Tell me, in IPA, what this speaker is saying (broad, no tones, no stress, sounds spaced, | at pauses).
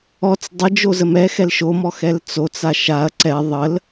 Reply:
ɔ t͡s dˤ ə d͡ʒ o z ə m ɛ x ɛ l ʃ o m ɔ x ɛ l t͡s o t͡s a ʃ a ɐ̯ ǀ ɛ ðˤ ə l